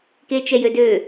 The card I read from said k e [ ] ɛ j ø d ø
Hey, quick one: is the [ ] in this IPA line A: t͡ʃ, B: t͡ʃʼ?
A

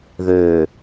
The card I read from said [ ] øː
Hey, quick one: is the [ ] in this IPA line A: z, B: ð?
B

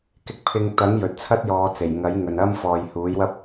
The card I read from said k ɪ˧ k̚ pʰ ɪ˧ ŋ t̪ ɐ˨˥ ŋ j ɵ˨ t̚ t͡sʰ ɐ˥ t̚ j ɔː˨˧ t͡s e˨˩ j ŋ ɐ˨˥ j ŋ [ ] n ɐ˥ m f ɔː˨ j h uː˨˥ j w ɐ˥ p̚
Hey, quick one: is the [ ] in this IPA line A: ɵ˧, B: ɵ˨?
B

